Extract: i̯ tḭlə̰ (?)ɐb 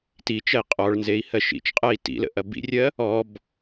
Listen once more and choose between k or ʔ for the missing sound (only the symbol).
ʔ